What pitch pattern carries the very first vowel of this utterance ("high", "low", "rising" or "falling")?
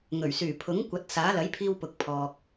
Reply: low